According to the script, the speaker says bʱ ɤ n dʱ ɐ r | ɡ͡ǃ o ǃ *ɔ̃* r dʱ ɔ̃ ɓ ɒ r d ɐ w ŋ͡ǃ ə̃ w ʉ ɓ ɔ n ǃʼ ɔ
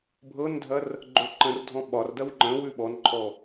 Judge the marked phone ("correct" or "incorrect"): incorrect